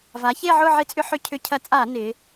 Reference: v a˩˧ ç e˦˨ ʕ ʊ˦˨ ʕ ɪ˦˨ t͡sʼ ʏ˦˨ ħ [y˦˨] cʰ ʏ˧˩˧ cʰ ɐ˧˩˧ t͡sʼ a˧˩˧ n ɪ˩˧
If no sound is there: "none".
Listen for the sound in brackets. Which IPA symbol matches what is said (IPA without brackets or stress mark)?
ʏ˦˨